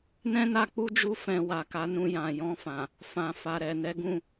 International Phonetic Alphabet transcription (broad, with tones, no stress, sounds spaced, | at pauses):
n ɛ̃˦ n a˧ k͡p u˦ d͡ʒ u˧ f ɛ̃˨ w a˨ k a˨˦ n ũ˧ j ã˨ j ɔ̃˧ f ã˨ | f ã˨ f a˨ ɾ ɛ˨ n ɛ˨˦ ɡ ũ˦˨